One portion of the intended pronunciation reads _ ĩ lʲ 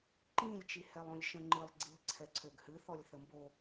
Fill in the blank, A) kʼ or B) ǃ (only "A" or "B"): B